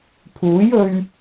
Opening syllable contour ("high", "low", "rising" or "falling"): rising